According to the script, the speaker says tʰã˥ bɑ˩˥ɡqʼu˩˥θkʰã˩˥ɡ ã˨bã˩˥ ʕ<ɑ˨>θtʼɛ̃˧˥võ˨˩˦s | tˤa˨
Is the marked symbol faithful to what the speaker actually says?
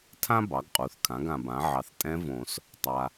yes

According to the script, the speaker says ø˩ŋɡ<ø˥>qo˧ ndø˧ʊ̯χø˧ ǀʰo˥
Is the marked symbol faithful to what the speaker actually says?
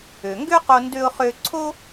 yes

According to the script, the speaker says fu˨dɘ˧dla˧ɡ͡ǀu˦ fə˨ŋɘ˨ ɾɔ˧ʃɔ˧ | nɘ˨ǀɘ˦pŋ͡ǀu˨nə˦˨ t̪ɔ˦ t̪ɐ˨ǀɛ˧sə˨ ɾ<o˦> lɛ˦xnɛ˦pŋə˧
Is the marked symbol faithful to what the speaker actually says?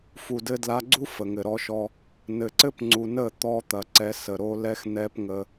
yes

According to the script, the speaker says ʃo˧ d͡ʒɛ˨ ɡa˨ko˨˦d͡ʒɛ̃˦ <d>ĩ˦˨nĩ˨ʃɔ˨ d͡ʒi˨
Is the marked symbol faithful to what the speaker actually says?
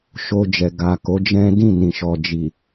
yes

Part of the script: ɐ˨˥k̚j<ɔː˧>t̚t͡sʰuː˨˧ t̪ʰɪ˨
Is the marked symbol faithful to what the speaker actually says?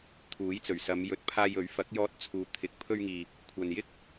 yes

